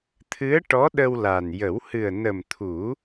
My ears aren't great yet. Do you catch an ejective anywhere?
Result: no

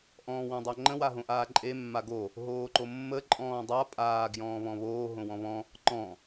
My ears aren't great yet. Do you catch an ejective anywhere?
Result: yes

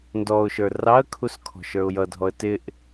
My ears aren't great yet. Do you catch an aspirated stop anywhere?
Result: yes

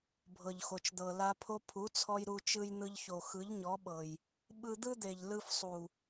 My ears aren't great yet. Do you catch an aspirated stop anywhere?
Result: yes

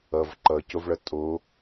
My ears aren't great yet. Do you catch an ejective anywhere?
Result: yes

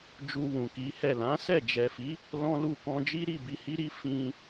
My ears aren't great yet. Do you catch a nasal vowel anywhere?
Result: yes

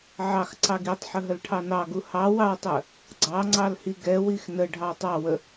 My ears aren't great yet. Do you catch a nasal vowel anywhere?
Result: no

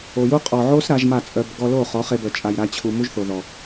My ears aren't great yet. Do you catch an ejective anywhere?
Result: yes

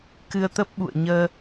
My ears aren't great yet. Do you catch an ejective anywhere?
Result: no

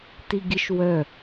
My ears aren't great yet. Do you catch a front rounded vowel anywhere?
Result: yes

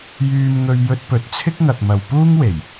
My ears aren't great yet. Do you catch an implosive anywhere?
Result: no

